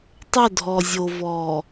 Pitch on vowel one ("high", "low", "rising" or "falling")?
falling